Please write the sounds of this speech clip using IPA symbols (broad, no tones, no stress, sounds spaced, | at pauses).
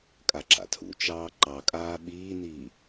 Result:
kʼ a ǁ a̰ tʰ ṵ t͡ʃ ɑː ǃ ɑ kʼ aː ɓ iː n iː